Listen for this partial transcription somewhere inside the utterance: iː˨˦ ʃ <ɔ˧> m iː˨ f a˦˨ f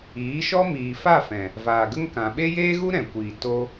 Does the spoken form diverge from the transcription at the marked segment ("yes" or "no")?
yes